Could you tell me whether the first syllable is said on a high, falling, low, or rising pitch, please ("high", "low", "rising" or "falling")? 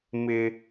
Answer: high